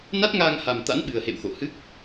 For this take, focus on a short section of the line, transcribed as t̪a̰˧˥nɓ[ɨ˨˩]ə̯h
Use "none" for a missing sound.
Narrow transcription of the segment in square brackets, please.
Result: ɨ˨˩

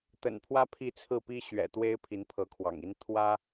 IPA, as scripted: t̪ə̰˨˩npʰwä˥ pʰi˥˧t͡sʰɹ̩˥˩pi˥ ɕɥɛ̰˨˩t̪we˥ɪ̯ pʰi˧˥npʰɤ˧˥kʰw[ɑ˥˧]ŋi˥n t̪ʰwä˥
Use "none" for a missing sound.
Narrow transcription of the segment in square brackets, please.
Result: ɑ̰˨˩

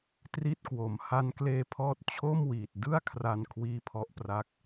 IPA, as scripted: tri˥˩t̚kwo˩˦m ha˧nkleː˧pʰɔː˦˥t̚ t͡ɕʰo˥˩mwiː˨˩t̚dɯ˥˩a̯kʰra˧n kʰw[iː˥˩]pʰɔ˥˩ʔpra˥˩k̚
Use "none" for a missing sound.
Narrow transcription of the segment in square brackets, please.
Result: iː˥˩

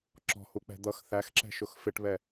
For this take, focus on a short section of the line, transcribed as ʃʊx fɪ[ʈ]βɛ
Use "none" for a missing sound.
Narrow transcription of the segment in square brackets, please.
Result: ʈ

